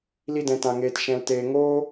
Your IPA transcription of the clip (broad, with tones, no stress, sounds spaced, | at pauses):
l i˦ d ɛ̃˧ t ã˧ ŋ eː˧ t ʃ ɛ̃˧ l t eː˧ ŋ oː˦